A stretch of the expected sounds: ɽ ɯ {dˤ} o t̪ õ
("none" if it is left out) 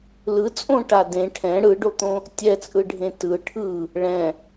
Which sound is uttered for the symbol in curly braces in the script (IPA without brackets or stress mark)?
ɖ